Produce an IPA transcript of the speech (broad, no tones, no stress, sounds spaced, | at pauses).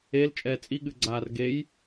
e l t͡ʃʼ ɛː t͡sʼ i ɠ ɨ ɡ͡ǀ aː r ɡ e j